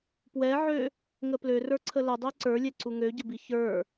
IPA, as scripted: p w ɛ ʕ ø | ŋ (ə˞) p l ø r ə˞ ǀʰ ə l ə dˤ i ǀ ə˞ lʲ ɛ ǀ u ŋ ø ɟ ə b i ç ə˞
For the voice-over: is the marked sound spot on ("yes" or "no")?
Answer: no